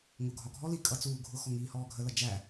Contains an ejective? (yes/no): yes